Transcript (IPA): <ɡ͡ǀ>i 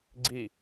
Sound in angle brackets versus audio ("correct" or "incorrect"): correct